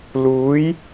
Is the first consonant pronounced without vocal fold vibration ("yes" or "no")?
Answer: no